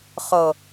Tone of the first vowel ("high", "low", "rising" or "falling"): low